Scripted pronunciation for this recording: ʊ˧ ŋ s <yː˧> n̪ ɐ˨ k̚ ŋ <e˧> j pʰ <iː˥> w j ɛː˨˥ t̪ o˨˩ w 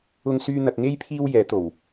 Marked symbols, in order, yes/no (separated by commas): yes, no, yes